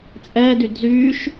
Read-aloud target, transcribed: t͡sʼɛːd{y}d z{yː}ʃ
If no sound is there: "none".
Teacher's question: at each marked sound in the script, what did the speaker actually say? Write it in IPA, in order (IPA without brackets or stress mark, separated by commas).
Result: y, yː